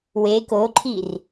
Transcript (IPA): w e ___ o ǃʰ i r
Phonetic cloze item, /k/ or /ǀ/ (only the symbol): k